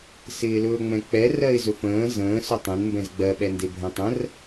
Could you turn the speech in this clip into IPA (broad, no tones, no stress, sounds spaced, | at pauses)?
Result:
s ɪː l ɵː ŋ͡m ɛ̃ k͡p ɛ r ɜ ɪ̯ z ɵ f ə̃ː z ə̃ː s ɵ tˤ ɛ̃ n m b ɛ̃ z ɡ͡b ɜ ɓ ɛ n d e bʱ ɛ̃ tˤ ə̃ r